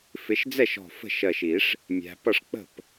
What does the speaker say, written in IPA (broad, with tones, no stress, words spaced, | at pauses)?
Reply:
fɪ˨˦ʃd͡zɛ˥˩ʃɔ̤˧˩ fə̤˥˩ʃɜ˧˩ʃi˨˩˦ʂ | mʲæ̤˨˦ pʌ˥˩ʂk͡pə̤˥˩p